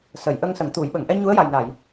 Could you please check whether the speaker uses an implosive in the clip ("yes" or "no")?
yes